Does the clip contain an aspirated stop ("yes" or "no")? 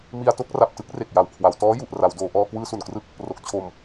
yes